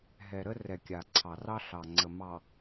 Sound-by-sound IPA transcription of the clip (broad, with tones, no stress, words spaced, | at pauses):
ɦɛ˨ɾə˦ rɛ˨kʲa˨ǀʰɑ˨rɑ˦ ɬɑ˨ŋ͡ǀə˨mɑ˨